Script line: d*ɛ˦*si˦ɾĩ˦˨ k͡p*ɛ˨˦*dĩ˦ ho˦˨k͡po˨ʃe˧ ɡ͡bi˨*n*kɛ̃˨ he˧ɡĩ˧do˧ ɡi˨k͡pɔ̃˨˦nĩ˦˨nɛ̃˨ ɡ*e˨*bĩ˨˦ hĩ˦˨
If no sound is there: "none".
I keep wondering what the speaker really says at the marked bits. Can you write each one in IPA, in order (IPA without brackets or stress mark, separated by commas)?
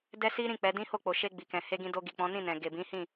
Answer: ɛ˦, ɛ˨˦, none, e˨